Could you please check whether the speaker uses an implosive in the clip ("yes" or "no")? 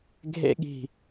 yes